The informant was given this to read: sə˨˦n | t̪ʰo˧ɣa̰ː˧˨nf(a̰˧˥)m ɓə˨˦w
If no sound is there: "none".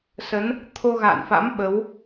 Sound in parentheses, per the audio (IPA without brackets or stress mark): a̰˧˥